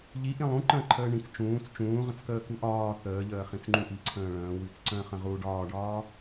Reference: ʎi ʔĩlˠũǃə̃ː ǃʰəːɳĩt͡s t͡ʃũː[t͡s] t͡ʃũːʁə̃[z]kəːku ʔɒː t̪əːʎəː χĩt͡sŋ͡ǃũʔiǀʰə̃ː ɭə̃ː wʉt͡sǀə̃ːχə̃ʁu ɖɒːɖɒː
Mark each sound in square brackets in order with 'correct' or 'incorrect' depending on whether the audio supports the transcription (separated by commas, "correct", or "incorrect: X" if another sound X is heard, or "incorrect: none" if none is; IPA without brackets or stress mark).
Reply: correct, incorrect: t͡s